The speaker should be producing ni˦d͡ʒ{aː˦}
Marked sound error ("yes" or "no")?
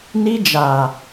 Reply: yes